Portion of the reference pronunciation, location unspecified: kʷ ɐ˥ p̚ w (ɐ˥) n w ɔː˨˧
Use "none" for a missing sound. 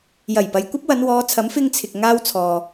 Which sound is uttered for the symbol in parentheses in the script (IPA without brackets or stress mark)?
ɐ˨˧